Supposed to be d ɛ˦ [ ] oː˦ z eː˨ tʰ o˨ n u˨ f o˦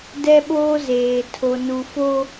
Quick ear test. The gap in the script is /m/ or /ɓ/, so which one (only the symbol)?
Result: ɓ